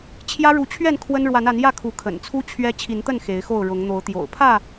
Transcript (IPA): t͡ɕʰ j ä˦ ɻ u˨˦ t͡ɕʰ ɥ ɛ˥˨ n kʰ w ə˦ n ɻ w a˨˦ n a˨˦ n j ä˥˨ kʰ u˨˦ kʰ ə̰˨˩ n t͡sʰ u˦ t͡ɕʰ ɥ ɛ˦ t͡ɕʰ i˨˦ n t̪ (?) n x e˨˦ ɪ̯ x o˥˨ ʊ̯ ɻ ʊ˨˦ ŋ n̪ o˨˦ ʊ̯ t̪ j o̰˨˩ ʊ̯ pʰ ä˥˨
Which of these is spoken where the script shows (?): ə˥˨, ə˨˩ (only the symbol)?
ə˥˨